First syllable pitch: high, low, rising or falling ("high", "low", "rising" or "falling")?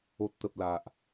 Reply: low